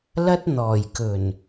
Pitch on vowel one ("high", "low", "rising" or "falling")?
high